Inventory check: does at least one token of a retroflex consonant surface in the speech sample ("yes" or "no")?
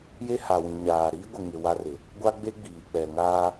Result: no